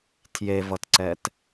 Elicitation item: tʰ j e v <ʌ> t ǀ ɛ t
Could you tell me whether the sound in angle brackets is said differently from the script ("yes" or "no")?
no